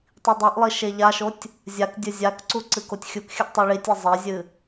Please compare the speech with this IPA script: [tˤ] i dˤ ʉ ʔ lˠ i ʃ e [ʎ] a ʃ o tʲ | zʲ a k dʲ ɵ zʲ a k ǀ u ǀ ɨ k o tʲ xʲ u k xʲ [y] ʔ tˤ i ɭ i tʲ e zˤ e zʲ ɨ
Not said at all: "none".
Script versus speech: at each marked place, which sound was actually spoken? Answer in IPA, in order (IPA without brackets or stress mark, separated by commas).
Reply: tˤ, ʎ, ɨ